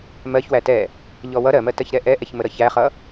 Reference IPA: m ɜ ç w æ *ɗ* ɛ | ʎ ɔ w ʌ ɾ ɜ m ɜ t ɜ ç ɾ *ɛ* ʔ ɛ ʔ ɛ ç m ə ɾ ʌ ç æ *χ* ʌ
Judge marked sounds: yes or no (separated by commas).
no, yes, yes